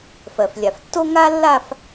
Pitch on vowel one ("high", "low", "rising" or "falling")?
low